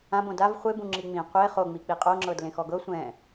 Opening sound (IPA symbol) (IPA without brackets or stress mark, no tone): ã